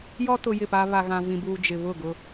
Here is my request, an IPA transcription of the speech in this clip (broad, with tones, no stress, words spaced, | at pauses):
jɔ˦tʊ˨ jɪ˦˨pa˦ βa˨ɣã˨vĩ˨buː˨ d͡ʒɪ˨βʊ˦˨ɡʊ˦